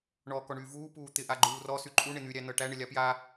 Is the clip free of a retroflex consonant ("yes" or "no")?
no